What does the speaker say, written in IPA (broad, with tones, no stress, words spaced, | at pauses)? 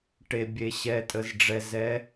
ʈe˩bʲe˩ɕɛ˩tʼə˩z ɖ͡ʐɛ˩ zɛ˩˧